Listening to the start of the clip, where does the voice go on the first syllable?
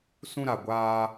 high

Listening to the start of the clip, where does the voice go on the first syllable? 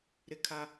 high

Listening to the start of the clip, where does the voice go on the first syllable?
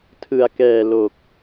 low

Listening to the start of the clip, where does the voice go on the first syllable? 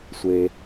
low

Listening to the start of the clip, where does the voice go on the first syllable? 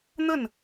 falling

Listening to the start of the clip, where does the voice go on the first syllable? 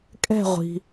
falling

